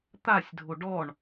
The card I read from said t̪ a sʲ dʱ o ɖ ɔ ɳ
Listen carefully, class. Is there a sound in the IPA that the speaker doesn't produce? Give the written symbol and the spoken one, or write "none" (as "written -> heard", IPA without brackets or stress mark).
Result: none